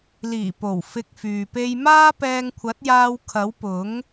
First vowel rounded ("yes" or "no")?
no